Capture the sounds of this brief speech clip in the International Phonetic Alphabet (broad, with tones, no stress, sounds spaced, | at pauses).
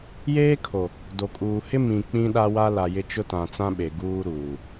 j eː˦ kʰ o˨ | d o˨ kʼ uː˨ h ɪ˦ m ĩ˨ k͡p ĩ˦ ɗ a˦ w a˦ l a˨ j ɪ˦ t͡ʃ ʊ˦ t ã˨ t͡s ã˦ ɓ e˨ ɡ uː˦ ɾ uː˨